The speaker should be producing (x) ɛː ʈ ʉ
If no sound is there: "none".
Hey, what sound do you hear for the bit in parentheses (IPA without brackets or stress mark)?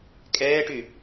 kʼ